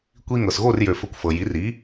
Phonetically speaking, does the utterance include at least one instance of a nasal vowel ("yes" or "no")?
no